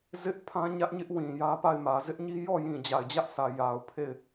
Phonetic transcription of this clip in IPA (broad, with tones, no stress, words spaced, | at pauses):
zɪ˦ʔpʰã˦ɲä˦ʔɲɪ˦ʔ wĩ˨jä˦ pa˦˨ɪ̯mä˨ zɪ˦ʔɲi˦jɔ˦˨ jĩ˨d͡ʑa˨ɪ̯d͡ʑä˦ʔsä˨ ja˨ʊ̯pʰe˦˨ɪ̯